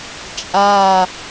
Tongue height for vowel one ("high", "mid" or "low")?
low